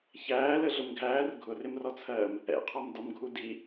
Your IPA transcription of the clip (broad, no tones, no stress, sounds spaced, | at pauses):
ç æː l ə ɮ ʊ m ɡʱ æː r ɡʱ ʊ r ɪ m r ɔ t͡sʰ ɜː m | ɛ̰ qʰ ɔ m d ɒ m ɡʱ u d i